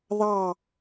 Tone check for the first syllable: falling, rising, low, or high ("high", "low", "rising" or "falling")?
falling